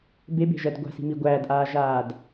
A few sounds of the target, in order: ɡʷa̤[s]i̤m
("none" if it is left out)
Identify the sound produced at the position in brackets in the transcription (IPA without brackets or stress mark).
s